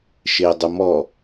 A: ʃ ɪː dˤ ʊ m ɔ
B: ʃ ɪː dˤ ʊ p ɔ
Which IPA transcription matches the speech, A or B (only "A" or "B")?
A